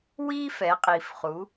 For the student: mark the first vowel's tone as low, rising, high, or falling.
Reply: high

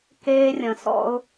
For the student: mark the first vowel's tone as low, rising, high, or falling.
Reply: high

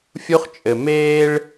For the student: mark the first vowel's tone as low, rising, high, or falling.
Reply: high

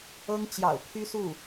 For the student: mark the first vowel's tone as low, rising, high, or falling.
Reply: high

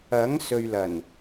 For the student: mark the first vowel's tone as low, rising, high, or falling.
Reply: rising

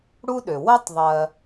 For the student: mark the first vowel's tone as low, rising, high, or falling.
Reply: high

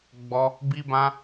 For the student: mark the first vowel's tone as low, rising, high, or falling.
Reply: high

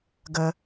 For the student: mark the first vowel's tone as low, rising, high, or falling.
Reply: low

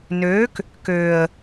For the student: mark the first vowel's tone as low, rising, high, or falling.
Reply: rising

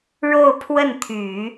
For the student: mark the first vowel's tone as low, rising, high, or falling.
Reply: falling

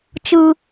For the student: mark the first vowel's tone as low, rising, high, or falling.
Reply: high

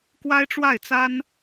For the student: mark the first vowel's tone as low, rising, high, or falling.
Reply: high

